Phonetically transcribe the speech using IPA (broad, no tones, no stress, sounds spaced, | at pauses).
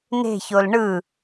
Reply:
n e̤ ç o l ɳ ɯ